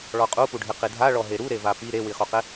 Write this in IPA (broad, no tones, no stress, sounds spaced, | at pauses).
ɭ ɔ qʼ u p u ɖʱ ɪ q i dʱ a ɭ ɔ ɦ e ɾ u ɾ e v a p i ɾ e w i χ u q ɪ